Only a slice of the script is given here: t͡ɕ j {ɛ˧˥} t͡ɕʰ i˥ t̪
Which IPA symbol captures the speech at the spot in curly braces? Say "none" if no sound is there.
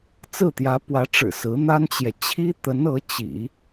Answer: ɛ˨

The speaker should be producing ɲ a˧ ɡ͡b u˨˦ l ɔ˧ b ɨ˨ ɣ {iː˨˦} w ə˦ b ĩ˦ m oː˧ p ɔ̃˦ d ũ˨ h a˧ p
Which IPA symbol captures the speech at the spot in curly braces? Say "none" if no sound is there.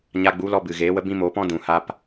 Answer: eː˨˦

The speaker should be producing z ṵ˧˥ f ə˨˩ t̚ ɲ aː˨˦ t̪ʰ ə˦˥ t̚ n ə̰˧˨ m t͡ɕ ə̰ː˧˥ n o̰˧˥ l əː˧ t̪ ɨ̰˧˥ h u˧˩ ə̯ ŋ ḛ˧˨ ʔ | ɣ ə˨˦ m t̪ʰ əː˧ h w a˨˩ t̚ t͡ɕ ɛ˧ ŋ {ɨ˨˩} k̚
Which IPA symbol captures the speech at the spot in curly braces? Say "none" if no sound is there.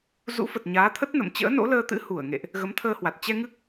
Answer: ɨ˦˥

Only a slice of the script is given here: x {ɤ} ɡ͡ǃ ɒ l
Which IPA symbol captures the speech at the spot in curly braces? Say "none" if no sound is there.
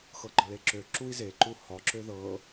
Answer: ɤ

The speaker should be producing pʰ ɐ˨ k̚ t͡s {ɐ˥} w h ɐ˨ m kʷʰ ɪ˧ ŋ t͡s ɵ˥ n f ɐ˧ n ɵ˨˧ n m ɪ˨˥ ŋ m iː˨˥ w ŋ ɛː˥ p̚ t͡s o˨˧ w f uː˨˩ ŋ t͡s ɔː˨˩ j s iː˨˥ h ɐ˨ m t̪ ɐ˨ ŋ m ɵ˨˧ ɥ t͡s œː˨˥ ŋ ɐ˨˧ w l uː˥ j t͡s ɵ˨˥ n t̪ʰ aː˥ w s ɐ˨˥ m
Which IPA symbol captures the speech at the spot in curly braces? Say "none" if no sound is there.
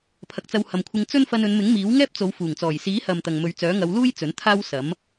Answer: ɐ˧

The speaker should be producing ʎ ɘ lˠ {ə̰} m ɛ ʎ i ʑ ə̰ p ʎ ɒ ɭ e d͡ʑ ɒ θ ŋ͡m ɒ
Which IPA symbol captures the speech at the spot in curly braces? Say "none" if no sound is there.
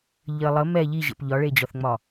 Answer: ə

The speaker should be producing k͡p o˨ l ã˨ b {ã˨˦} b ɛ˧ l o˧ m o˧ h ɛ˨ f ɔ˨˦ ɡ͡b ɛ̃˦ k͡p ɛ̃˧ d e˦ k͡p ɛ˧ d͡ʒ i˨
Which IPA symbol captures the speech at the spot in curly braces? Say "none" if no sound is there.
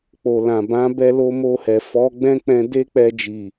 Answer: ã˨˦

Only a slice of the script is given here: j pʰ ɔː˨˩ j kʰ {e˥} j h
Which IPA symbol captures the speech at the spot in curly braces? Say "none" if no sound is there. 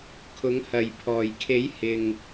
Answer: e˨˥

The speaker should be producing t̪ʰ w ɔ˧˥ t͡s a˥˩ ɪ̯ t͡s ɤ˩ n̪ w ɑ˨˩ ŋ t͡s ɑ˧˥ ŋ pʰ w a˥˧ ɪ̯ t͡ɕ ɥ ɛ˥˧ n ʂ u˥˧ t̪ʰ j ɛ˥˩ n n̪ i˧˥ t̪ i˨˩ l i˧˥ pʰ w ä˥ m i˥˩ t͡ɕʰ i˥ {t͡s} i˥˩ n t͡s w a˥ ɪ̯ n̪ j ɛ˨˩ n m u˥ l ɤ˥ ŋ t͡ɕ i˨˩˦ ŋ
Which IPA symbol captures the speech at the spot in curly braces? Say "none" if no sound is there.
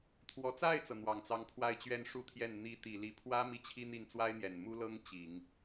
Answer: n̪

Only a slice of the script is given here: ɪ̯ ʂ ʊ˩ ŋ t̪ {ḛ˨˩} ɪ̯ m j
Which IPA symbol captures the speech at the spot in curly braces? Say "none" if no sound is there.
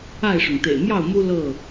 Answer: ḛ˨˩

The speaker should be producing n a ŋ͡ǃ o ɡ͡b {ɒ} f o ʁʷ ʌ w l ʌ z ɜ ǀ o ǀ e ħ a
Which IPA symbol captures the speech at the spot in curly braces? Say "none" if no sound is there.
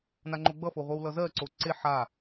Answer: ʌ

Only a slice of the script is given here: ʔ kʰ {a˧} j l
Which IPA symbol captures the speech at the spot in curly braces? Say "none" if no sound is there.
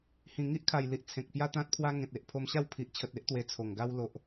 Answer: a˨˩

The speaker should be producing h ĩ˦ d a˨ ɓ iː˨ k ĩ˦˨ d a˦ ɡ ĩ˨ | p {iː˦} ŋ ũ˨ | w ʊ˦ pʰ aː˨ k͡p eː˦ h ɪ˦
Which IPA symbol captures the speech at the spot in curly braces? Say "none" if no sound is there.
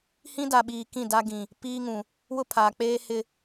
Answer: iː˦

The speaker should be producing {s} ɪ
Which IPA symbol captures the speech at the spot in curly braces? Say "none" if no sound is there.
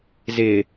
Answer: z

